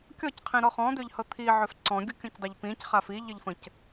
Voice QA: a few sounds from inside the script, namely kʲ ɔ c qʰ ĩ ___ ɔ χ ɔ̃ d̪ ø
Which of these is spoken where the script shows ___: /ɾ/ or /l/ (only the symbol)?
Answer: ɾ